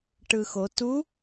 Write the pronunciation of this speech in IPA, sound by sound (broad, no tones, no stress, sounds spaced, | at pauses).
ʈ ɯ x o t u